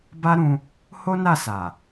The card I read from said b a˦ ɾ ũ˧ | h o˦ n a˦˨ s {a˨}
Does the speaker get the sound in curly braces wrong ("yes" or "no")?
no